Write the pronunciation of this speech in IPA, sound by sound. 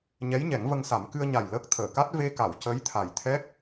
ɲɛ˧˥jɲɛ˨˩˦ŋvə˧ŋsa˨˩˦m kɨ˧ə̯ɲa˨˩j ləː˦˥k̚ t̪ʰəː˨˩˨ka˦˥t̚ ve˧ka˨˩˨w cə˧˥jt̪ʰa˨˩jt̪ʰɛ˦˥k̚

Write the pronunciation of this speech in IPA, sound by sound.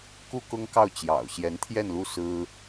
ku˥˩kʊ˥ŋkɑ˥˩ʊ̯ t͡ɕjɑ̰˨˩ʊ̯ɕjɛ˧˥n t̪ʰjɛ˥˧nlu˥˩ sɹ̩˥

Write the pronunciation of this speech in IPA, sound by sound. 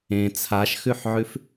ẽ t͡sʰaʃxʉħʕʉf

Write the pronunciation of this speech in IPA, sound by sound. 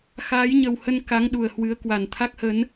xaː˨˦jɲə˨˩whə˧n ka˨˦ŋ ɗu˨˩ə̯hwɨ˨˦ə̯kwa˨˩n t̪ʰa˦˥k̚hə˨˦n

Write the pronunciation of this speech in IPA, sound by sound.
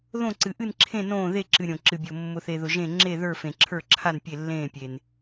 ðõ˦˨ǀɨ˨ʔɨ˦˨nǁʰẽ˦˨ nõː˦˨ðe˦˨ǁɨ˨ ɾʲõ˨ ǁɨ˨bʲo˨ mːʊ˨θe˨ðʊ˨ ʒẽ˦˨ ŋ͡ǁe˦˨ðə˞˦˨ fẽ˨ǁʰə˞˦˨ǁʰa˦˨n pʲe˦˨lːẽː˦˨pʲe˨n

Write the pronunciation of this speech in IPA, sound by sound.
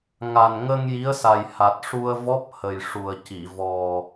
ŋa˨˩n ŋə˧ŋ ji˧˥ə̯sa˨˩j ha˨˩t̚ʂu˧ə̯vɔ˦˥p̚hə˨˩j ʂu˨˩ə̯ci˨˩˨ vɔ˨˩

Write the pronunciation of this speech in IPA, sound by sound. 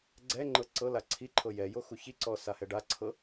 ɡ͡ǀɛŋ͡ǃɤ ǀɤla ǀʰiǃʰɤ jɛjo xuçiǀɔ sahɛɖaǀʰɤ

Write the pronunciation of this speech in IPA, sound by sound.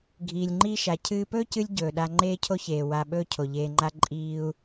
ɡʱiː˨lʲŋ͡ǃiː˦ʃa˨ cʰɨː˦ pɵː˦cɨ˧lʲ ɟɵː˨ɗa˧ ŋ͡ǃeː˦cʰo˦çeː˨ wa˧ ɓɵː˦cʰo˨ʎeː˧ŋ͡ǃa˦ ǃʼiː˦u̯

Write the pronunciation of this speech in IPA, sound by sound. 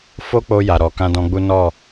fo˦k͡po˧ ja˨ɾɔ˨kã˧ dɔ̃˧ɡ͡bu˦ nɔ˦˨

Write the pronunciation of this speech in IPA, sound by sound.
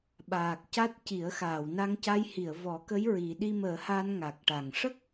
ɓaː˨˩k̚ca˦˥t̚ci˨˩˦ə̯ xaː˨˩˨wna˧ŋ ca˧jhi˨˩˨ə̯ vɔ˨˩˦kə˧˥j ɹi˨˩˦ ɗi˧məː˨˩˦ha˧n ŋa˨˩k̚ʈa˨˩ŋ ʂə˦˥k̚

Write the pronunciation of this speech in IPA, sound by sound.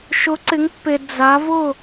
ʃʊ˨˦ǀɪ˨˦ŋpːe˨ d͡za˨˦vʊ˥˨

